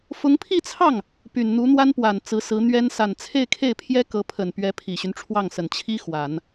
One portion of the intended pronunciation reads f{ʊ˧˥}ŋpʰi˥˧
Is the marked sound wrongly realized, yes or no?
no